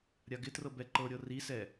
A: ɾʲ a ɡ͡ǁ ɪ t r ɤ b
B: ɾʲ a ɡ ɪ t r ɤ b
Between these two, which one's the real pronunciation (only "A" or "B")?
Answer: B